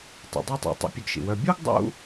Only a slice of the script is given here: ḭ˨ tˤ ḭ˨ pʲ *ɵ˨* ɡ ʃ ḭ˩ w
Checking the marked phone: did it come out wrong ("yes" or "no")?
no